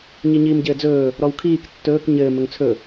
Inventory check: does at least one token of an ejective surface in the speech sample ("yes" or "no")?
no